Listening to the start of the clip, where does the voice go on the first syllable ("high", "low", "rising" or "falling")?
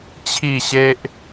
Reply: falling